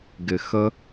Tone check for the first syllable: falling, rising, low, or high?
low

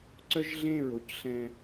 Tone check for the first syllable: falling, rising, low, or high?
high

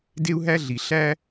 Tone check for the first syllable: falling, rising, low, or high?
high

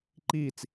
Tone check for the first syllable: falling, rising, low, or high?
falling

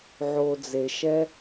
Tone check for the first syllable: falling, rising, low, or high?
low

